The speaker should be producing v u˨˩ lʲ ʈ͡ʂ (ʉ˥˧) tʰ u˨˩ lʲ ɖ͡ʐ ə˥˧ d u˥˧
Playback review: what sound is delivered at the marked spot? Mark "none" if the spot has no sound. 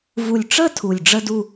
ə˥˧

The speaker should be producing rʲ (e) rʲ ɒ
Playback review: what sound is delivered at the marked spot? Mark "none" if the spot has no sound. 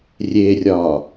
e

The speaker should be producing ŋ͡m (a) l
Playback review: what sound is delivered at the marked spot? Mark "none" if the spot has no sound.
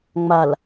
a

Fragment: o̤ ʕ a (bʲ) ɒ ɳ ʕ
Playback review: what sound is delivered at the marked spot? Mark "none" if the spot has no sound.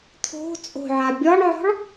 bʲ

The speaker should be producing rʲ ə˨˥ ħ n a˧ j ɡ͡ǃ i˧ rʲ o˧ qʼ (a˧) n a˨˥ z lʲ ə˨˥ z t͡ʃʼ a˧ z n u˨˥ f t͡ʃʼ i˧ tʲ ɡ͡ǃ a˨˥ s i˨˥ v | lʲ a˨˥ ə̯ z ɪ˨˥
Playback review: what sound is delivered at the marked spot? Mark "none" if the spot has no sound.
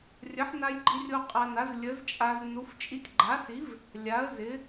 a˧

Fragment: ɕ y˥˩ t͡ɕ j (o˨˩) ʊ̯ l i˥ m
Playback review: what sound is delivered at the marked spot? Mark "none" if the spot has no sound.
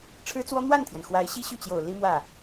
o˨˩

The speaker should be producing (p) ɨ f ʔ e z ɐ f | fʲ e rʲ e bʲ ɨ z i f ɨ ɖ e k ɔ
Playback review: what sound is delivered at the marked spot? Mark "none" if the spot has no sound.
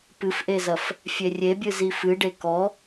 p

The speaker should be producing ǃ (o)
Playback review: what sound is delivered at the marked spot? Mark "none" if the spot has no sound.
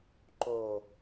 o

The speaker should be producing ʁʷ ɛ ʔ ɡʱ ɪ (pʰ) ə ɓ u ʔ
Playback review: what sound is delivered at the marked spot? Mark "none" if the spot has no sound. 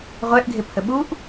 pʰ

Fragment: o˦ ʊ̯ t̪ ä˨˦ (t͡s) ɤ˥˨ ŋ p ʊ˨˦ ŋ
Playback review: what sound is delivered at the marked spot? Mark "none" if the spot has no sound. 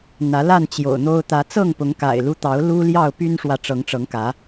t͡s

